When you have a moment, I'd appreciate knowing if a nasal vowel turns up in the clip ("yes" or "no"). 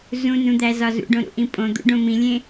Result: yes